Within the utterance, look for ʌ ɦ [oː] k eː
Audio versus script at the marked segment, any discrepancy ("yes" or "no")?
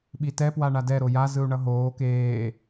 no